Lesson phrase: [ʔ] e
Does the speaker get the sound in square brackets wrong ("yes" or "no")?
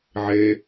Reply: yes